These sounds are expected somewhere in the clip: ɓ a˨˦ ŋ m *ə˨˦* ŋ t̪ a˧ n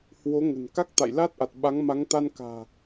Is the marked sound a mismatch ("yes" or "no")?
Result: yes